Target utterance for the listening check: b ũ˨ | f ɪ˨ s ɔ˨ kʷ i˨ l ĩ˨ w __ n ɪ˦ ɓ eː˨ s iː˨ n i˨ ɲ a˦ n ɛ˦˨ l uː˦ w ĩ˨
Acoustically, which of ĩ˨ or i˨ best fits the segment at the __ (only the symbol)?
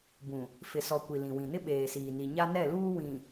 ĩ˨